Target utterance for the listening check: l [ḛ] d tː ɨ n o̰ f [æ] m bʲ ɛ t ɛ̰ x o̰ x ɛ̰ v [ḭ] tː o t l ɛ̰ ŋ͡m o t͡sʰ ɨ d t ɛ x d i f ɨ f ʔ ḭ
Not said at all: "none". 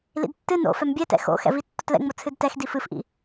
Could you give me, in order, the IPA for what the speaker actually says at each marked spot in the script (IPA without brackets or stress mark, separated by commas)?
ḭ, ɛ, i